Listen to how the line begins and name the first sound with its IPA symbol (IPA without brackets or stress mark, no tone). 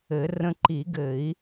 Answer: ɘ